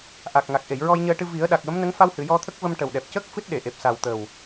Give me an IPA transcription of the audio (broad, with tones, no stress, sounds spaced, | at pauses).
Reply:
ʔ a˨˩ k̚ ŋ a˨˩ k̚ ʔ e˨˩˨ j ɹ ɔ˧ j ɲ əː˧ ʈ ɨ˧ v i˨˩˦ ə̯ ɗ a˨˩ k̚ w ə˧˥ m n ə˧˥ ŋ f a˧ w h ɨ˨˩˨ j ɔ˧ t̪ʰ ə˦˥ k̚ v ə˧ m ʈ ə˨˩ w ɗ ɛ˨˩ p̚ c ə˦˥ k̚ f ɨ˦˥ t̚ ɗ e˨˩˨ ʔ e˨˩ p̚ s a˨˩ w t̪ ə˨˩ w